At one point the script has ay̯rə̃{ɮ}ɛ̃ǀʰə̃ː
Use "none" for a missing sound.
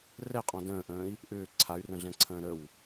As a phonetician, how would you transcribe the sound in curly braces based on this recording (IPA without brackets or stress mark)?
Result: ɮ